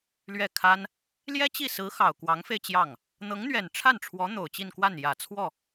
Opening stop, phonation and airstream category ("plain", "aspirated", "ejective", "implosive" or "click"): aspirated